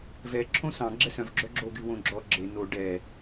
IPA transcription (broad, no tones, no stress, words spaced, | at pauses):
vɛ ǁʰõsɑ̃ ɡ͡ǁɛsœ̃v ɡ͡ǁœɡ͡ǁo ɡywõɡ͡ǁɔ ɡ͡ǁe no ɖɛ